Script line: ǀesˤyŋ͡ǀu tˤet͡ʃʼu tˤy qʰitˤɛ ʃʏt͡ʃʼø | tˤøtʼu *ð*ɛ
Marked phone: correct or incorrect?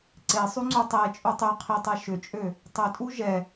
incorrect